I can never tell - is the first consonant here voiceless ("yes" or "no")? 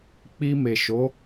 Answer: yes